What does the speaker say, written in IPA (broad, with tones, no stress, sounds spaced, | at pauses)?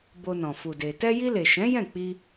b o˧ n ɔ̃˨ f u˨ d e˨ t ɛ˧ j i˧ l e˨ ʃ ɛ̃˨˦ j ɛ̃˦˨ k͡p i˧